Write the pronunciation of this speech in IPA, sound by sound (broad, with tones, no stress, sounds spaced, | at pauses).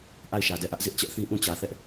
ʔ a˦˨ ɪ̯ ʃ ä˨ d ɛ˦˨ ʔ ä˦ ʔ z ɪ˦ ʔ t͡ɕ ɛ˦ ʔ θ ĩ˦ ʔ ũ˦˨ t͡ɕ ä˨ θ ɛ˦ ʔ